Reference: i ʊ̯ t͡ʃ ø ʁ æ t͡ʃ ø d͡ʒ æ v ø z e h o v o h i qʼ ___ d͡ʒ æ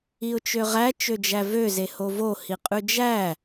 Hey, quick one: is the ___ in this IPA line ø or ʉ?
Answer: ʉ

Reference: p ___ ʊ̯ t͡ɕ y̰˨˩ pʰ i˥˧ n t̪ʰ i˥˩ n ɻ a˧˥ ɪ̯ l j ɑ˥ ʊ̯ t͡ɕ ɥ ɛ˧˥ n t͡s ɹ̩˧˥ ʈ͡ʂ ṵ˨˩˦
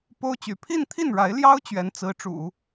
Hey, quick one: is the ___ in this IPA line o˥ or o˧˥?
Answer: o˥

